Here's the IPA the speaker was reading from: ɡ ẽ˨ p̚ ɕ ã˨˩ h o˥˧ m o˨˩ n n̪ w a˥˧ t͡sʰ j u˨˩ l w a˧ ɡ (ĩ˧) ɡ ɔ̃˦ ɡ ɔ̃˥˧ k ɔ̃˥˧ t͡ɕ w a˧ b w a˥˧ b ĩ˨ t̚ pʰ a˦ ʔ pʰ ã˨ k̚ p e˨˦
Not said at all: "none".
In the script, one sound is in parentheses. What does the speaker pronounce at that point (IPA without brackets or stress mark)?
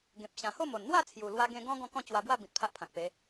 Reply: ẽ˧